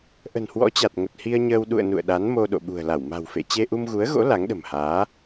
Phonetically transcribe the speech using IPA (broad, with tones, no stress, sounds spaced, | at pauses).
ʔ ə̤˨˩ n h w ɔ̰˧˥ t͡ɕ a˨˩ t̚ ŋ ə˨˩ t̚ h i˧ ə̯ ɲ əː˧ w ɗ ṵ˧˨ ə̯ n ṵ˧˨ ə̯ ɗ a˨˦ n m o˧ ɗ o̰˧˨ ɓ ṳ˨˩ ə̯ l a˧˩ w m a̤˨˩ w f ḛ˧˨ t͡ɕ e˧ ʔ u˧ m ɣ u˨˦ ə̯ ɣ o̰˧˥ l a˨˦ ŋ ɗ ə̤˨˩ m h aː˨˦